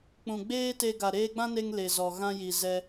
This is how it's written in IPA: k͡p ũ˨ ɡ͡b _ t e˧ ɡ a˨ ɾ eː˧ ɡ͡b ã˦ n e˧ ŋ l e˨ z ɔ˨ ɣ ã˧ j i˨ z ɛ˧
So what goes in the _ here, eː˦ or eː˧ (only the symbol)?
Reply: eː˦